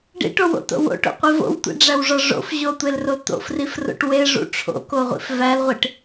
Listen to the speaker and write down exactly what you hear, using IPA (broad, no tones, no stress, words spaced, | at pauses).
ɖḭʈowo̰to̰ wo̰ʈo̰qʷi vo̰wtʷḭɖ͡ʐæwʐɒ ʐo̰f ʑotʷelro t̪o̰frifro̰ʈ weʐṵ ʈ͡ʂʰo̰koʁʷḭf vælʁʷiʈ